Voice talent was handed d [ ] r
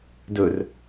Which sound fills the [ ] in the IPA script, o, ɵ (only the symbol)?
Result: ɵ